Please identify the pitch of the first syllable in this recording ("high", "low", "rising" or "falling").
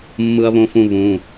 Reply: high